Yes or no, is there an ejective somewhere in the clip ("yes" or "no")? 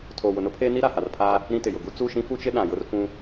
no